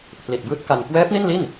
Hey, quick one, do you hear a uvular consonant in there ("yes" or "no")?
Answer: no